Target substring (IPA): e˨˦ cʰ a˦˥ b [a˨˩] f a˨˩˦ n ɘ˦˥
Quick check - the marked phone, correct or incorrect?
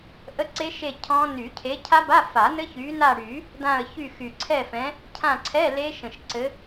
incorrect